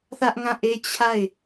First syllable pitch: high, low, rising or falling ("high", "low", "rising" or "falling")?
high